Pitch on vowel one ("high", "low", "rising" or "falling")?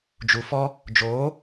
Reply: low